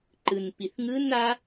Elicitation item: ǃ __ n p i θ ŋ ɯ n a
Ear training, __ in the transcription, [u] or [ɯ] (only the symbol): ɯ